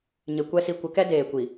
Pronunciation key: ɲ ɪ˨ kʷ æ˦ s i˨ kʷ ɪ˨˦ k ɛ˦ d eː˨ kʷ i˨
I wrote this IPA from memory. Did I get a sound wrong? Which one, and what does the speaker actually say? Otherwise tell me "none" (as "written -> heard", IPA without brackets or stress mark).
æ˦ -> ɛ˦